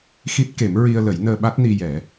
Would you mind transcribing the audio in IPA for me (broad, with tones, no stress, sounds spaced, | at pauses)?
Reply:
x i˦˥ t̚ k e˨˩˦ m ɹ i˧ ə̯ l ə˨˩˦ j n əː˧ ɓ a˦˥ t̚ n i˧ j ɛ˨˩˦